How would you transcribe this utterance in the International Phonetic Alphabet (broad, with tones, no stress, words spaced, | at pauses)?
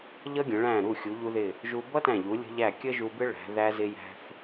ʎʌ˥ɡʲə̃˩˧ ɭæ̃˧˩ɾu˧˩ xʲu˩˧ʎu˧ðɪ˧˩ | ʒu˧ bʌ˥tæ̃˧˩ʎu˩˧ lʲə̤˧ʎæ˧˩ kʲə˥ʒu˧bɪ˥ ɭæ̤˩˧ ðæ˧zɪ˧jæ̤˧θ